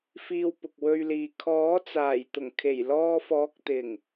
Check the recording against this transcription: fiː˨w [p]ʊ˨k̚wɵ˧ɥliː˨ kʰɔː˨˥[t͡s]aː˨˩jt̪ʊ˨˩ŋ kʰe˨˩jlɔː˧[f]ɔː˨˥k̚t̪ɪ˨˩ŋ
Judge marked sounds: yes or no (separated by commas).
yes, yes, yes